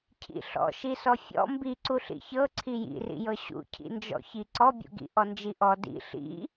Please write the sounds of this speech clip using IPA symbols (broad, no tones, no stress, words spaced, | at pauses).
cʰḭɬɔ̰ʃisɔ fʲɔ̰ mbiǀu ɬḭçɤ ǀʰijḭrḭjɤ ɕṵcʰḭnd͡ʒɔ̰çi ǀɔbʲṵɡḭ ʔɔnd͡ʒiʔɔ dḭ ɬḭ